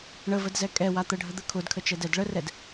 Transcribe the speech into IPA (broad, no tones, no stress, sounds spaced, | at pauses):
ɳ ə v ə d z ɛ kʼ ɛ w a t̪ ə ɖʱ ə d̪ ə kʰ ʊ d kʰ ə t͡ʃ ɛ d ɛ d ɭ ə r ɛ d